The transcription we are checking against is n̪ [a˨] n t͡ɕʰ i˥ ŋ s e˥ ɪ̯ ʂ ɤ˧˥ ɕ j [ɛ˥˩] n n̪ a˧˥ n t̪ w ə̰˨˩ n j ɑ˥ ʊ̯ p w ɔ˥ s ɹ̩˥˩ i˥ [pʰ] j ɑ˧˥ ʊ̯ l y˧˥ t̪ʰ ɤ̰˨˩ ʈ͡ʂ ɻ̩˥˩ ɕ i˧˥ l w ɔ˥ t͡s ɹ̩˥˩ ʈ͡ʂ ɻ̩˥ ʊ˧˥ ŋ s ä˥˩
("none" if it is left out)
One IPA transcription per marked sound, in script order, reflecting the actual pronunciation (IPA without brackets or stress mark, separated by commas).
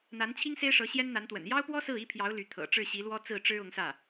a˧˥, ɛ˥, pʰ